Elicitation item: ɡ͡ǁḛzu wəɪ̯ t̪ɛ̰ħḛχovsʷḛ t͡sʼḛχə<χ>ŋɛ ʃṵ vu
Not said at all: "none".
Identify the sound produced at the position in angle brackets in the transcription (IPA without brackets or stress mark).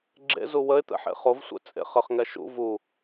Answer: χ